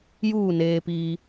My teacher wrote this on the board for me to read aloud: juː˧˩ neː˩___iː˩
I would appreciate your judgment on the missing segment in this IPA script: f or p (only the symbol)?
p